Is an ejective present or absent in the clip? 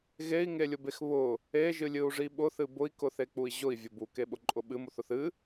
present